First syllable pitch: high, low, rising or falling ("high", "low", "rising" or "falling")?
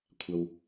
low